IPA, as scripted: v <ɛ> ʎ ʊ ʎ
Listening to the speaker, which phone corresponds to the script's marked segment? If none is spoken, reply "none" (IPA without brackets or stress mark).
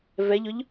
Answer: ɛ